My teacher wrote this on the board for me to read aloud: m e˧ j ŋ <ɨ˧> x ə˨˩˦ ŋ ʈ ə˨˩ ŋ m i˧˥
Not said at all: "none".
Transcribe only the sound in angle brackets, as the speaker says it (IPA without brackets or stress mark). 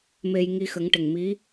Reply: i˧